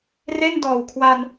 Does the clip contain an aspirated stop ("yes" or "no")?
yes